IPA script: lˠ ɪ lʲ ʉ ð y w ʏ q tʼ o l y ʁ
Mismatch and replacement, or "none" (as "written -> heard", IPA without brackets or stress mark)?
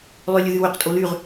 ɪ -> ʏ